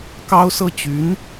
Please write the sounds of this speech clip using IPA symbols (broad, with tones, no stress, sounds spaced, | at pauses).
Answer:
k ɑ˥ ʊ̯ s ɤ˥˩ t͡ɕ y˧˥ n